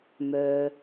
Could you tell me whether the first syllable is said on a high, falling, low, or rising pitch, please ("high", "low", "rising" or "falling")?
low